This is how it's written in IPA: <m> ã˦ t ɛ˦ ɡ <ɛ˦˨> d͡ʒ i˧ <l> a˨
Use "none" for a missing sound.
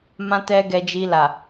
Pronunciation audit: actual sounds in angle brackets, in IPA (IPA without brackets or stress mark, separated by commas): m, ɛ˧, l